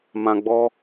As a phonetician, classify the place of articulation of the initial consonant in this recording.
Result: labial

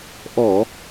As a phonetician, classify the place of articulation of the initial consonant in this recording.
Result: glottal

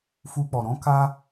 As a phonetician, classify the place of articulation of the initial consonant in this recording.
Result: labial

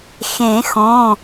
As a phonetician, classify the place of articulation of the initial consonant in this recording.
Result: velar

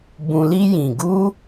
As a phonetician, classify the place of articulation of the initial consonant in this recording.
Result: labial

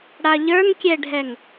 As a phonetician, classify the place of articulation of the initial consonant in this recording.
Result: retroflex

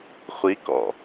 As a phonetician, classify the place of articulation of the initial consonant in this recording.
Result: uvular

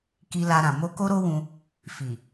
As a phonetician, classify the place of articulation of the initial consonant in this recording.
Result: velar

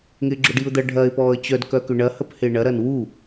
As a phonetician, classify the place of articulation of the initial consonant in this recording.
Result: velar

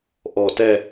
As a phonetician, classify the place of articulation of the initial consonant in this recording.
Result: glottal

